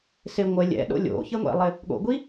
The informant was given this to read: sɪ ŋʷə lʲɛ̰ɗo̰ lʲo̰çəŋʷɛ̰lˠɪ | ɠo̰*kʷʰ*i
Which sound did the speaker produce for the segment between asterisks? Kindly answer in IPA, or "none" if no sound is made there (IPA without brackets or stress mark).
ɡʷ